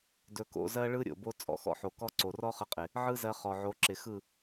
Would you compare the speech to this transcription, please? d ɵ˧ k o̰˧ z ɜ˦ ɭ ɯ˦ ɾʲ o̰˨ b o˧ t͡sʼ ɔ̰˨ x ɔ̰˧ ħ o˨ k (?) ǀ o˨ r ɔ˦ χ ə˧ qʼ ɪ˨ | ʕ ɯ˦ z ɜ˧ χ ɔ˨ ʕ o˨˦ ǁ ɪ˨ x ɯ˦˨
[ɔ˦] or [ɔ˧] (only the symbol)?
ɔ˦